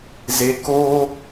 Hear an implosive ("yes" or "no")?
no